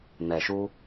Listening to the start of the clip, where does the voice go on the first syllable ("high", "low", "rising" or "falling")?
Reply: low